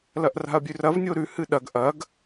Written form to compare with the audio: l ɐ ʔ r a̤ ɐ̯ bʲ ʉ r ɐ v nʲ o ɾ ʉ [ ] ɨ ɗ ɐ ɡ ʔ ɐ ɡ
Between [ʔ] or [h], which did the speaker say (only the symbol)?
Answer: h